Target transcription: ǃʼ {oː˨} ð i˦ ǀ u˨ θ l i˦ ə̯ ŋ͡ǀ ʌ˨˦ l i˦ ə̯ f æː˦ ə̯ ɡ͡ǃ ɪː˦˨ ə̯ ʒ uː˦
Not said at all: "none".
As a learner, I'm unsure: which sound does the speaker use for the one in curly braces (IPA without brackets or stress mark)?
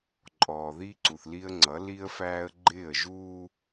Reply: ɔː˨